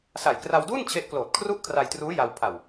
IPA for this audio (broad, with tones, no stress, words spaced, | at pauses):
sa˨˩jkra˧wduː˥˩n t͡ɕʰe˦˥ʔkloː˨˩t̚kʰru˥˩ʔ kʰra˧jtruː˦˥ ja˧w pʰa˨˩w